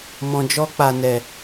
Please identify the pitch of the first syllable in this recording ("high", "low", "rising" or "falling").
low